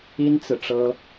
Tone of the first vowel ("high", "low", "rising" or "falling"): high